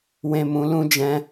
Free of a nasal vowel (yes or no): no